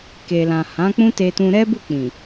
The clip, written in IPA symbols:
k e˨ l ã˨ h ã˨˦ k͡p ũ˦ t e˧ t ũ˧ ɾ ɛ˦ b u˦˨ k͡p ĩ˨

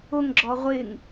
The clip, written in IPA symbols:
ʊ ŋ ɡ͡ǁ ɔ ʁʷ ɪ ŋ

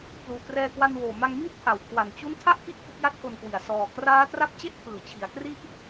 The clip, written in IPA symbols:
p l uː˨˩ k r ɛː˧ k w a˧ n w oː˨˩ m a˧ ŋ m iː˥˩ t̚ pʰ a˨˩ w kʰ w a˨˩ n t͡ɕ u˦˥ n tʰ a˥˩ ʔ k i˥˩ ʔ f ɯ˦˥ k̚ j a˥˩ t̚ k o˧ n k w i˨˩ a̯ s ɔː˨˩ k r aː˦˥ t r a˦˥ p̚ t͡ɕ e˥˩ ʔ pʰ ɯː˨˩ t͡ɕʰ i˩˦ a̯ k r i˥˩ ʔ

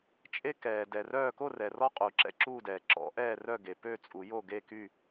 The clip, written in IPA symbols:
t͡ʃʼ e˦ k ɛː˩ d ɛ˩ r œː˥˨ k o˥˨ r ɛ˩ r ɔ˦ qʼ uː˩ ǁ ɛ̰˦ ǁ uː˥˨ d ɛː˩ ǁ ɔ̰˨˩˦ ʔ ɛː˥˨ r œ˥˨ ɡ e˩ p ø˥˨ t͡sʼ u˨˩˦ j o˥˨ ɡ e˥˨ k y˥˨

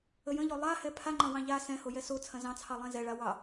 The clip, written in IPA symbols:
ə j ə̃ ʎ o lˠ a h ɛ pʰ a ŋ͡ǃ ɐ̃ w ɑ̃ ʎ a s ɛ̃ h o j ɛ s o t͡sʰ ɐ̃ z ɑ̃ t͡sʰ ɑ lˠ ɛ̃ z ɛ ɭ a w ɑ

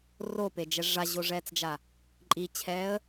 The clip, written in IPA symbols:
r o p e d͡ʒ ɛ ʐ a ʑ o ʐ ɛː t͡s d͡ʒ a | ǃʼ i t͡ɕʰ ɛː ə̯

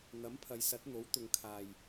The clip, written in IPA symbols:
n̪ ɐ˨˥ m pʰ ɐ˨˧ j s ɐ˨˥ t̚ n̪ o˨˥ w t̪ ʊ˨˧ ŋ kʰ aː˨ j

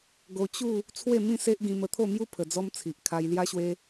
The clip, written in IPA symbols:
ɡ o˧ t͡ɕ u˥˧ | t͡sʰ w e˥˧ m ĩ˥˧ s e˦ ʔ ɡ ĩ˧ m ə˧ t̪ʰ o˥˧ m j u˦ pʰ ə˧ d͡z ɔ˦ m t͡sʰ i˨ ʔ kʰ a˧ j l j a˦ ɕ w e˦

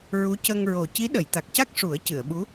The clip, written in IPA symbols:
ɹ u˧˥ c ə˧ ŋ ɹ o˨˩ c i˧˥ ɗ ə˨˩˨ j t̪ a˨˩ k̚ c a˦˥ k̚ ʂ u˨˩˦ ə̯ c ɨ˨˩˨ ə̯ ɓ u˧˥

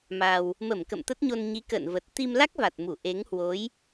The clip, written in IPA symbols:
m a˨˩ w | m ə˧˩ m k ə̰˧˨ m t̪ ə˦˥ t̚ ɲ o˧ n ɲ i˨˦ k ə̰ː˧˨ n v ə˨˩ t̚ t̪ i˧ m l a˦˥ k̚ v a˨˩ t̚ m u˧˩ ʔ e˨˦ ŋ h w o˨˦ j

